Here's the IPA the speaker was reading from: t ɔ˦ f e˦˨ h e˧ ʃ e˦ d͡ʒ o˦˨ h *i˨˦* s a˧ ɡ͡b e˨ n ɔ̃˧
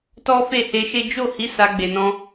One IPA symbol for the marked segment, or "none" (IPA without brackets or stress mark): i˨˦